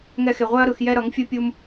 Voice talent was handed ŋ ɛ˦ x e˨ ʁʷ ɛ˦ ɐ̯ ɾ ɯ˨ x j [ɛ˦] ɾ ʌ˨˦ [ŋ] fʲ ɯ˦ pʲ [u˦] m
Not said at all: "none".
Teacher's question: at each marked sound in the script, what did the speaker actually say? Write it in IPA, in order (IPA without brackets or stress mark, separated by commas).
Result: ɛ˦, ŋ, u˦